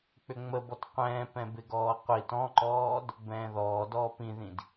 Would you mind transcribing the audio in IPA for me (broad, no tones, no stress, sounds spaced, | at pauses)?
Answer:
k͡p ʏ ŋ͡m ə b ɔ t qʷ ɛ̃ː p ɛ̃ b ɪ ɡ ɔː qʷ i t ɔ̃ ǃ ɔː d | b ɛ̃ː ð ɔː d ɔː p ĩ ð ĩ d